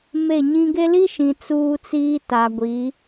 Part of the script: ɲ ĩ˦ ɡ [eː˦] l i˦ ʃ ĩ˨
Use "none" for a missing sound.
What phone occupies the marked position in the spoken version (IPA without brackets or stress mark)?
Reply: e˦